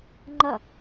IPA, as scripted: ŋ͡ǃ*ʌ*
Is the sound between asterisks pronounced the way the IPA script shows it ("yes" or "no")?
yes